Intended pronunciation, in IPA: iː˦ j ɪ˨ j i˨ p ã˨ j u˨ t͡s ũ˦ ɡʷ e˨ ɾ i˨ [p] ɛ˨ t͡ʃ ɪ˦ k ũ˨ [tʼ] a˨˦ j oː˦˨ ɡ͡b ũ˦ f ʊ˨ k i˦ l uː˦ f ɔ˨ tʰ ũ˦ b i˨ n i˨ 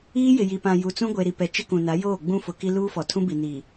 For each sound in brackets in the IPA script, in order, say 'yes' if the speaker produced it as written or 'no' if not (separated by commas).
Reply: yes, no